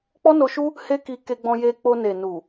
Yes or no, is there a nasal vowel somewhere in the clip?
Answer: yes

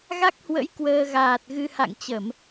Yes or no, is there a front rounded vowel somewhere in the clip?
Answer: no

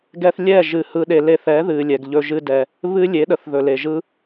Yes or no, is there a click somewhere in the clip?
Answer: no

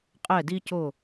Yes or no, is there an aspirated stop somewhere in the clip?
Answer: no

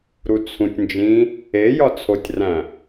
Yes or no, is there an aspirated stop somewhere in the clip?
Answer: yes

